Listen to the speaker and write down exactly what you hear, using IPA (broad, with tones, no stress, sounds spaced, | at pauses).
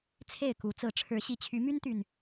t͡sʰ e˥˨ ɪ̯ k u˨˦ t͡s ɹ̩˨˦ ʈ͡ʂʰ ɻ̩˨˦ ɕ i˨˩ t͡ɕʰ y˨˦ m y˦ n t̪ y˨˩ n